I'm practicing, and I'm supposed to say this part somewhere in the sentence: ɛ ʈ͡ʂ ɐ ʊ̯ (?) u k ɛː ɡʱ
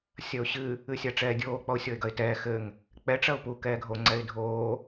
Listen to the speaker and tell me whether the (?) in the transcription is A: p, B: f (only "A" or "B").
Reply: A